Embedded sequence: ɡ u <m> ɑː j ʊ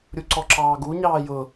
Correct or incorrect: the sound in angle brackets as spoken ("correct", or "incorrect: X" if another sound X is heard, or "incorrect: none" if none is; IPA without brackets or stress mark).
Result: incorrect: ɲ